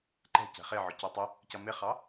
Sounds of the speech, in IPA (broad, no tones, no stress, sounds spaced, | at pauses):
ǃ ɛ̤ c ɛ̤ χ ɪ ʕ ʊ c ɛ tˤ ɪ | c ʌ m ɪ χ ɑ